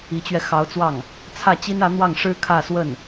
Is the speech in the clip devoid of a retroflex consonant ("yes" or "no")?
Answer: no